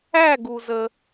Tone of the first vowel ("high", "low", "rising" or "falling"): falling